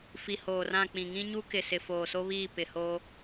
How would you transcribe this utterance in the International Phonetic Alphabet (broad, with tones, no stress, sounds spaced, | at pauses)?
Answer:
f i˨ h oː˨ r ã˦˨ k͡p ĩ˨ ŋ ĩ˦ ɲ u˦ k ɪ˨ s ɪ˨ f oː˨ s o˦ β iː˦˨ p ɪ˨ h oː˦